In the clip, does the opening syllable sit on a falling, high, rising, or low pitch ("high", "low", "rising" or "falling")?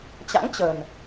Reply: rising